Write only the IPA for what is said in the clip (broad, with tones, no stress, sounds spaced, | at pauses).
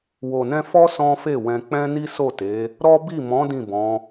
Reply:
w o˨ n ɛ̃˧ f ɔ˦ s ɔ̃˦ f e˦˨ w ɛ̃˧ k͡p ɛ̃˦ n i˦ s o˦˨ t e˨˦ | ɾ ɔ˦ b i˦˨ m ɔ̃˨˦ d ĩ˦˨ b ɔ̃˨˦